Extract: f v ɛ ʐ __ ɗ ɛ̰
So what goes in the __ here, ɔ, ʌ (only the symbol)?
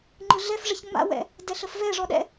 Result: ɔ